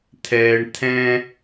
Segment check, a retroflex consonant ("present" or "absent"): present